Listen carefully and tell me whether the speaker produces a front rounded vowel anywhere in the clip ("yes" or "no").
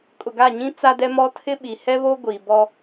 no